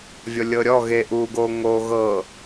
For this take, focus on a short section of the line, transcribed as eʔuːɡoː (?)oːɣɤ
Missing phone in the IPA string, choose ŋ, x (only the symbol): ŋ